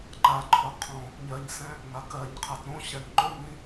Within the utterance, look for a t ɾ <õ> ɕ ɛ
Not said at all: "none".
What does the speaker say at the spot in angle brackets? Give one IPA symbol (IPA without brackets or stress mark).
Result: õ